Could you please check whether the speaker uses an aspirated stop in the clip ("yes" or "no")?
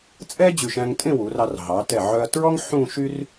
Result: no